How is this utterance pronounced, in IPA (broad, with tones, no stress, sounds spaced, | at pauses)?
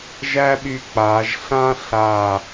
ʒ æ˥ ɓ y˧ k͡p aː˩˧ ʒ ɬ ã˥ ɬ a˧˩